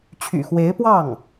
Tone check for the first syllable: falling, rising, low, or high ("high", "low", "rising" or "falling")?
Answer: low